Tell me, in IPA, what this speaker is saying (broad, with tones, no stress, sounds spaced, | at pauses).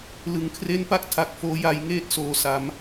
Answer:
l ɯ˩˦ ŋ kʰ r e˦˥ n p a˥˩ k̚ tʰ a˨˩ k̚ f oː˦˥ j a˧ j ŋ eː˥˩ t̚ s oː˨˩ s a˩˦ m